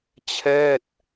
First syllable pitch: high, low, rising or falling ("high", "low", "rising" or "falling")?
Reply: falling